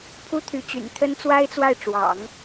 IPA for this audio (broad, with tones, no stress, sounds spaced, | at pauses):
pʰ u˥ t̪ʰ y˧˥ t͡ɕ y̰˨˩ n t̪ʰ ə˥ n t͡s w a˥ ɪ̯ t͡s w a˥˩ ɪ̯ ʈ͡ʂ w ɑ̰˨˩˦ ŋ